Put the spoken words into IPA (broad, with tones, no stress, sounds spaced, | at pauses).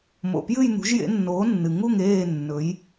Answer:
m o̰˨ p j ɨ˥˧ j n̪ ṳ˨˦ ʒ j ḛ˨˦ nː oː˨˦ nː ɨ˨ ŋ u˥˧ ŋ eː˥˧ nː ɵ˨˦ j